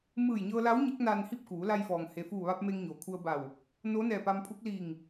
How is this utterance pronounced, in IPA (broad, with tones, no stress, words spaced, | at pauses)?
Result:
mɯː˧˩jɲɤː˧la˧˥w ɲe˧˥k̚naː˧nhi˥˨p̚kuː˩˧ la˧jfɔː˩ŋ he˩fuː˧˩ʋa˧p̚ me˧ŋɲo˩kʰu˧ə̯ba˧˩w | no˧˥nɛː˧˩pa˧mpʰu˧˥k̚ liː˧˩ŋ